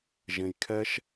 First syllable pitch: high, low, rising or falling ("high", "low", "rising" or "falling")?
low